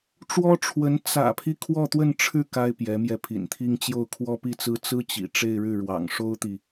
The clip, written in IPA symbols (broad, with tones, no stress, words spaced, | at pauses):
ʈ͡ʂwɔ˥ʈ͡ʂʰwə˧˥n t͡sä̰˨˩pʰi˦ kʰwɔ˥˧t̪wə˥˧nʈ͡ʂʰɻ̩˥˩ ka˥ɪ̯pjɛ˧˥mjɛ˧ pʰḭ˨˩nt̪ʰi˥ŋ t͡ɕjo˥˩ʊ̯kʰwɔ˥pi˥˩t͡sɹ̩˥ t͡sɹ̩˥t͡ɕḭ˨˩ ʈ͡ʂe˥˧ɪ̯ɻɻ̩˥˩ ɻwɑ̰˨˩ŋʂo˥ʊ̯t̪i˨